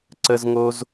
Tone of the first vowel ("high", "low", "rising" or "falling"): high